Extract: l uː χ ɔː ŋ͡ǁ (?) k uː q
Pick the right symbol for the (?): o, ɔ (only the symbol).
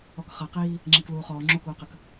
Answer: o